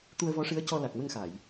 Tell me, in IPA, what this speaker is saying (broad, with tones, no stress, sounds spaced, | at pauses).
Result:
t̪ u˧ ə̯ v ɔ˧˥ ʂ ɨ˧˥ ə̯ c ɔ˧ l a˨˩ k̚ m ə˧ ŋ x a˨˩˨ j